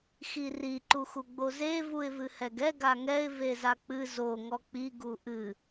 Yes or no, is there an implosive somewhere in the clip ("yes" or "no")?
no